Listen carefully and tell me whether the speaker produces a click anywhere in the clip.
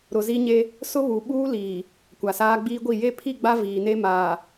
no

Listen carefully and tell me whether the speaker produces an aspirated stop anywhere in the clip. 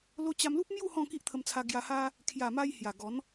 yes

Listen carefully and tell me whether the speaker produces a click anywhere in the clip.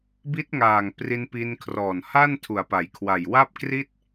no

